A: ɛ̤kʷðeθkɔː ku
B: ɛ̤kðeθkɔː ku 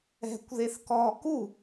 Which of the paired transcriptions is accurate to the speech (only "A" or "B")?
A